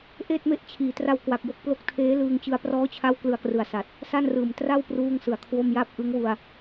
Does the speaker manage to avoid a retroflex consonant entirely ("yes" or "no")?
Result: yes